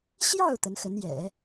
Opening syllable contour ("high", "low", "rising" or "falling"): falling